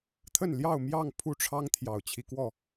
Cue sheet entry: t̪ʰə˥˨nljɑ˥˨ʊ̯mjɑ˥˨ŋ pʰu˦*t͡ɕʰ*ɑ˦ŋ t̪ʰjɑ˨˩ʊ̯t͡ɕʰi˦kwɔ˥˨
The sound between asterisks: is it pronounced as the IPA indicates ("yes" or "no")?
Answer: no